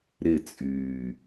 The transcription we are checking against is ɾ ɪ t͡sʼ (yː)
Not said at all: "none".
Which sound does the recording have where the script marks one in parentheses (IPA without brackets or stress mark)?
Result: yː